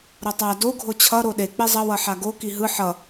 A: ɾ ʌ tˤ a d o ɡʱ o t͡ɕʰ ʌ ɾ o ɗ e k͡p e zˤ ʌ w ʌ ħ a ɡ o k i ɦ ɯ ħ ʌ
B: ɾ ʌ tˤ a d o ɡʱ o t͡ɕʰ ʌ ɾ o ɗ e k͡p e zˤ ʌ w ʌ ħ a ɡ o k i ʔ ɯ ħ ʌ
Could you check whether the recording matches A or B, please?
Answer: A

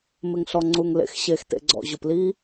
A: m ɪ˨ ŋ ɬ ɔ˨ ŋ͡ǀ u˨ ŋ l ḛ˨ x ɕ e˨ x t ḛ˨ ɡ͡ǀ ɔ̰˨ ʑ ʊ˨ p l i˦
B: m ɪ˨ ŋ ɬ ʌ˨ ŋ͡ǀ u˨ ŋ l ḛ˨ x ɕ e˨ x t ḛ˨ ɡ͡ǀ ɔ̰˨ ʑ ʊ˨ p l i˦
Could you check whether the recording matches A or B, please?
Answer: A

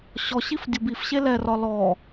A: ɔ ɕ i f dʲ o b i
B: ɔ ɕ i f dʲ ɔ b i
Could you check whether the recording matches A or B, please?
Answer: A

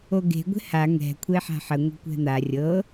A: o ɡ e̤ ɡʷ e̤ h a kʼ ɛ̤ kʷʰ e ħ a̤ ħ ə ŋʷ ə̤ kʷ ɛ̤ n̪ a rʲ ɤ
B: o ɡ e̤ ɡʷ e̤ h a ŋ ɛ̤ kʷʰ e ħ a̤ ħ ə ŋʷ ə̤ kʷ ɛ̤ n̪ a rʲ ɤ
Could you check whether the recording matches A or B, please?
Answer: B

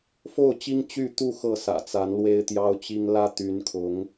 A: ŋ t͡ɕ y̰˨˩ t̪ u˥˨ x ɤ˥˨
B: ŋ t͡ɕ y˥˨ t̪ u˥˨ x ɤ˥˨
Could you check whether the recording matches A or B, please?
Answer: B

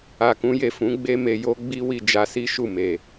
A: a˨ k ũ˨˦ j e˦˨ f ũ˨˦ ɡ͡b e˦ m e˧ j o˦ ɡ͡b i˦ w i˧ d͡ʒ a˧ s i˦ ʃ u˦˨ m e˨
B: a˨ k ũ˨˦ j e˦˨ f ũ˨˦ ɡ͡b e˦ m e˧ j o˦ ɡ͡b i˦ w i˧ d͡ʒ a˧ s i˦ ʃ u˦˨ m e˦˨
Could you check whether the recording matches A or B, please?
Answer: A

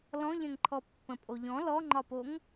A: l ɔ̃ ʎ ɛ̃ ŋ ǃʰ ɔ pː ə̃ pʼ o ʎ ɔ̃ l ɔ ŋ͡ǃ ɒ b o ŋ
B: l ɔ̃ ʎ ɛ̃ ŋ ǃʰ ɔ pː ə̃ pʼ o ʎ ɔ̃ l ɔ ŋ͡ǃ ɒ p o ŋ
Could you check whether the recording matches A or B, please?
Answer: B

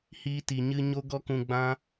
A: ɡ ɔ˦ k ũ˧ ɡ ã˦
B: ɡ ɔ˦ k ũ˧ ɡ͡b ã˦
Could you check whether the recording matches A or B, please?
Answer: B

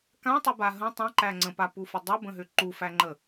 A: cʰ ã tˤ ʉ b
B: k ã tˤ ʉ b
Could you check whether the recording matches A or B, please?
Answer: B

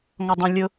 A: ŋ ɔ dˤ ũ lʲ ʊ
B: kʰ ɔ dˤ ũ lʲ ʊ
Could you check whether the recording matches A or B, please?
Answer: A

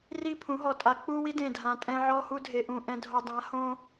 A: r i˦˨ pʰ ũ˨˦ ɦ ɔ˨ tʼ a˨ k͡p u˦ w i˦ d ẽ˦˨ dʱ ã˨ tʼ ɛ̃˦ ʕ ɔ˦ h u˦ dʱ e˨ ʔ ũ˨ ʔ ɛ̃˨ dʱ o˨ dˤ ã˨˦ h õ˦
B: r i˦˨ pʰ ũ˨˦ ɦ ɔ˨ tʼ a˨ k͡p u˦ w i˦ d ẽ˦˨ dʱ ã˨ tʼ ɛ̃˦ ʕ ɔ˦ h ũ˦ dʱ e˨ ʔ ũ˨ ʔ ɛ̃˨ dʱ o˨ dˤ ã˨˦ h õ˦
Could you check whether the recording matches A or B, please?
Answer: A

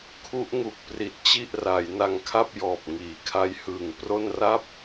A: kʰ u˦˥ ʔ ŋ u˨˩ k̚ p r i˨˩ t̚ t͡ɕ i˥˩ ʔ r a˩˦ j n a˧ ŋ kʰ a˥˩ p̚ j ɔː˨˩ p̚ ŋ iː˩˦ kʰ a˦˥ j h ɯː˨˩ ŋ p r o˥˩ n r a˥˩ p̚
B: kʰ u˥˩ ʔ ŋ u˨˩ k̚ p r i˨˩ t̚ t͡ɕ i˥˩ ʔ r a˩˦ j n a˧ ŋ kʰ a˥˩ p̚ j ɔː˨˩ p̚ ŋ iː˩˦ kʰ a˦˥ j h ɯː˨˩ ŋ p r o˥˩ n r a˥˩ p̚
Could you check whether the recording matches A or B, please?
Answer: A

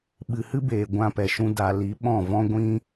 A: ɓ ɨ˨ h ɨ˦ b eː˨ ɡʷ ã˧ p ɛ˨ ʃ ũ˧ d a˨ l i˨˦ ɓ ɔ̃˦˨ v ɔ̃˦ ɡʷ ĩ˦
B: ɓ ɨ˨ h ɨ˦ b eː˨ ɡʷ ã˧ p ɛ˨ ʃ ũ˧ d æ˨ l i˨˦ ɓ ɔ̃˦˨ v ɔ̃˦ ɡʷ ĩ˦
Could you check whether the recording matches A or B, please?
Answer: A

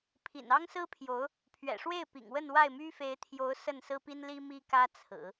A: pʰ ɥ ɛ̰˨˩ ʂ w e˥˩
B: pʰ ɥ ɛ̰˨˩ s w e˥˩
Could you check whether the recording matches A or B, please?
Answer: A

